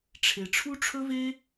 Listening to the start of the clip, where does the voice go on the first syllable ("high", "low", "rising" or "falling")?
low